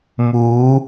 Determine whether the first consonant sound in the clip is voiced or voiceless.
voiced